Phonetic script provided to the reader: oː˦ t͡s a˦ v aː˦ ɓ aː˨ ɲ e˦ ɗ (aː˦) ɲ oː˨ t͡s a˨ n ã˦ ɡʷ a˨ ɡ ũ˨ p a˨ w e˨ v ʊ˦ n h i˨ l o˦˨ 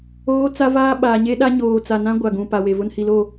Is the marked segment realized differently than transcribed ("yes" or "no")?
yes